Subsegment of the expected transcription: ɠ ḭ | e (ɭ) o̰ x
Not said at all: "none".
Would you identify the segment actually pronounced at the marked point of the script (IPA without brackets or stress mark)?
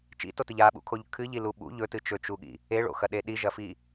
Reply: ɭ